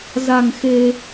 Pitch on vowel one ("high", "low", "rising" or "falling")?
low